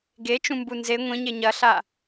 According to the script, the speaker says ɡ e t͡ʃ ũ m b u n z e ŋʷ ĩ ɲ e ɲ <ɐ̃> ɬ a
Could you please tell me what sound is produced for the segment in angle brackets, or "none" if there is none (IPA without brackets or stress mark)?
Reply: ɐ